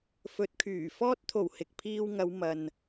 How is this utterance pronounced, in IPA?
fɵ˨˥t̚kʰyː˨˩fɔː˥t̚ t̪ʰo˨˩w hɪ˨k̚pʰiː˧w ŋɐ˨˧wmɐ˨n

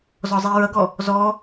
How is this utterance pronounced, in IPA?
zɔzˤiɹʌɡɔ | zɔ

